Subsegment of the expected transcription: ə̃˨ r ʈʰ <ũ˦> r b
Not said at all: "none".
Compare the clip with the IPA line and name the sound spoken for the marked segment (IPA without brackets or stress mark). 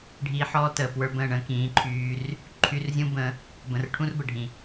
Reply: ũ˦